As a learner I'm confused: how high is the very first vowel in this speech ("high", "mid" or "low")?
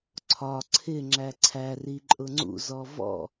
low